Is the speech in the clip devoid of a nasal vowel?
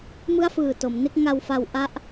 yes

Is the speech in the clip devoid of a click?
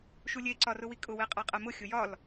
no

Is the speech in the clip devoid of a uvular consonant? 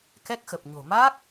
yes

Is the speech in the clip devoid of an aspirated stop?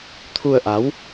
no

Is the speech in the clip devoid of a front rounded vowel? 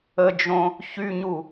no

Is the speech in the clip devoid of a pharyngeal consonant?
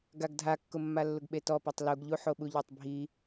no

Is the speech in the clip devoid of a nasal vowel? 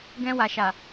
no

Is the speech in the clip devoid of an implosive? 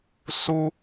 yes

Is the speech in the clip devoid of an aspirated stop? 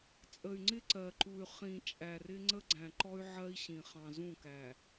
yes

